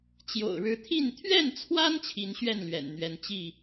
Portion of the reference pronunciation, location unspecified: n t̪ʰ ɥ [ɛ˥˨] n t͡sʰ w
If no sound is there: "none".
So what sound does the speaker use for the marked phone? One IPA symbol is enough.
ɛ˥˨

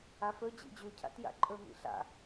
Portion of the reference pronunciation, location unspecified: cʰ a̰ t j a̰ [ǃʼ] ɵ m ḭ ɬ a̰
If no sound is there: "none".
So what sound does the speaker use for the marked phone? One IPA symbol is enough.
ǃʼ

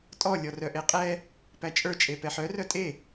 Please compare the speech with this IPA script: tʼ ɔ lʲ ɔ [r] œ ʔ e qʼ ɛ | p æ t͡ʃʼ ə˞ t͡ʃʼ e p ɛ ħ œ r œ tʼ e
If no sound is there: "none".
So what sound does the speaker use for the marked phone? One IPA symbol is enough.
r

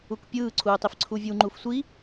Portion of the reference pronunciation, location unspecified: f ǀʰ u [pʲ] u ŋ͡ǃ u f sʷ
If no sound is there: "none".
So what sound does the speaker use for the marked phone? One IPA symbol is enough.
vʲ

